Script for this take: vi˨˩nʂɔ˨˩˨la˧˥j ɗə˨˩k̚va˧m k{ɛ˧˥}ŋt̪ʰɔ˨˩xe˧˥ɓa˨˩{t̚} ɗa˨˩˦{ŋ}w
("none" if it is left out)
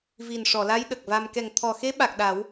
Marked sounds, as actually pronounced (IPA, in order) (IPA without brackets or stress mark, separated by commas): ɛ˨˩, k̚, none